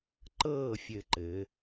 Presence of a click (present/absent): present